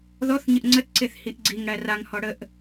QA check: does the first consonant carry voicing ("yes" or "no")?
yes